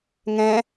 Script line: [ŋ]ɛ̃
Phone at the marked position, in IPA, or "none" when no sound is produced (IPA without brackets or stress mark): ŋ